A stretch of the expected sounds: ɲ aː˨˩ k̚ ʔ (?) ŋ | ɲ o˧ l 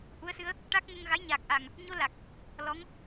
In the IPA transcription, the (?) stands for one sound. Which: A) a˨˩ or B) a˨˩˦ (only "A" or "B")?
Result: A